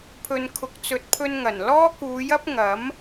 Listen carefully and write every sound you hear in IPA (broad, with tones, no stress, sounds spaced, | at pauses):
pʰ ɵ˨ n kʰ ʊ˨ k̚ t͡s ɵ˨ t̚ pʰ ɵ˧ n ŋ ɐ˨˩ n l ɔː˥ k uː˨˧ j ɐ˥ p̚ ŋ ɐ˨˥ m